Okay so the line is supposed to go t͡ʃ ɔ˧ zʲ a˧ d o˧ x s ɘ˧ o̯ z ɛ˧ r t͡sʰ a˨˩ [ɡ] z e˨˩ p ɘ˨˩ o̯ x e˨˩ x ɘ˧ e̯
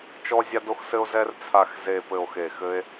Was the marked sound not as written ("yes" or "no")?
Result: yes